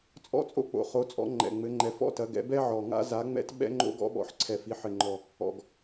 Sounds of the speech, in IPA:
t͡sʼ ɔ̰˥ t͡sʼ o̰˥ k͡p o̰˨˩ χ o˨˦ t͡sʼ ɔ̰˨˦ ŋ͡ǃ ɛ̰˨˩ ŋ͡m ɘ˨˦ ŋ͡ǃ ɛ˨˦ f ɔ̰˥ t ɐ˨˦ ɡ ɛ̰˨˦ b ɛ˥ ʕ ɔ˨˩ ŋ a̰˥ z a˨˦ ŋ͡m ɛ̰˥ t ɓ ɛ̰˥ ŋ͡ǃ o̰˥ ɡ ɔ̰˥ ɓ ɔ̰˨˦ ħ ǀʰ ɛ˨˩ f i˨˦ ħ ɘ˨˩ ŋ͡ǃ ɔ˨˩ | ɔ̰˨˩ ɡ

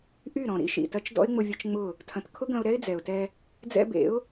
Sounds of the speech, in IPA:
ʔ y˦˨ ɾ ɔ̃˨ ɾ ḭ˦ ʃ ḭ˨ t ɐ˧ t͡ʃ d ɔ̰˦ ɪ̯ ŋ͡m ʊ˧ vʲ ɐ˦ t͡ʃ ŋ͡m ʊ˦˨ | tʰ ɐ̃˨ t kʰ ʊ˦ ɡ ɐ̃˧ ʊ̯ ɾ ɛ˦ ɪ̯ d͡z ɛ˨ ʊ̯ t ɛ˧ | d͡z ɛ̰˧ b ḛ˨˦ ʊ̯

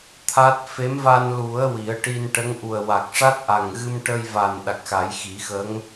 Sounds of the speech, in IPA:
t̪ʰ a˦˥ t̚ f e˧˥ m v a˧ n l u˨˩˦ ə̯ w i˨˩˦ ə̯ ʈ i˧ n ʈ ə˧˥ ŋ ʔ u˨˩ ə̯ w a˨˩ k̚ ʂ a˦˥ t̚ ʔ a˨˩ ŋ ɣ ɨ˧ m ʈ ə˧ j v a˨˩ n ɗ a˨˩ k̚ x a˨˩˦ j x i˨˩˦ x ə˧˥ ŋ

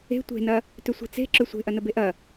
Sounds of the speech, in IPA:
e̤ tʷ e̤ n ɐ | t ʏ sʷ i̤ t͡s e̤ ǁ ø sʷ e̤ ʔ ɐ n ə b e ʔ ɐ

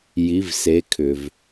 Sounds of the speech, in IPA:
j i˨˦ v s e˨˦ kʰ ʏ˩ v

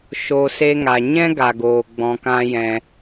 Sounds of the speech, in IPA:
ʃ o˧ s e˦ ŋ a˨ ɲ ɛ̃˦ ɡ a˨ ɡ oː˨ ɡ͡b ɔ̃˧ k ã˦ j ɛ̃˧

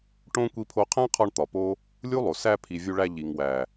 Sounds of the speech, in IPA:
ʈ õ˦ kʷ i˧ pʰ o˧ qʰ æ̃˦ qʰ ɒ˧ ɳ t̪ ɒ˨ p o˦ | lʲ u˦ lˠ o˨ s æ˧ pʰ i˨ vʲ u˧ ɭ æ˧ ʎ i˨ ŋ w æ˨

